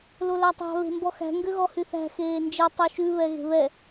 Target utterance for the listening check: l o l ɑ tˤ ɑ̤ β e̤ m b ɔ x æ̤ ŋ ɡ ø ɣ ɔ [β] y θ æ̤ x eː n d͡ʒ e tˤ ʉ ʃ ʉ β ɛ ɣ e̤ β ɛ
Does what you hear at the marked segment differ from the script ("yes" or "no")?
yes